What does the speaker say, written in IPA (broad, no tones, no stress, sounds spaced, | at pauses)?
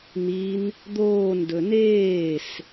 n̪ i n | d̪ oː n d ɵ n eː s